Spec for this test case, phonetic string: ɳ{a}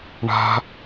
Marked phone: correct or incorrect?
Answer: incorrect